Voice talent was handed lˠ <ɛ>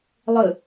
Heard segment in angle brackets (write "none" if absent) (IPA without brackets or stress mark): ɘ